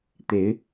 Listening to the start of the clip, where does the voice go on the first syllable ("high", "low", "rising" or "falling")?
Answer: rising